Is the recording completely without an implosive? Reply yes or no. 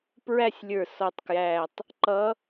yes